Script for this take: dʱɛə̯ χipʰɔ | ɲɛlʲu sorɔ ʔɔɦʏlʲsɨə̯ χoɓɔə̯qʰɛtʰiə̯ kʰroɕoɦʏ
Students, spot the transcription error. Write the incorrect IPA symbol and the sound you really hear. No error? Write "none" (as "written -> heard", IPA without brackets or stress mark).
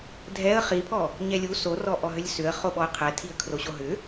ɨ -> ʏ